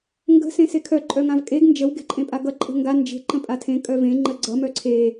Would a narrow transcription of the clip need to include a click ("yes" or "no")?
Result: yes